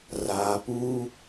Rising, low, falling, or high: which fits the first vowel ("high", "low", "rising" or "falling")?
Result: low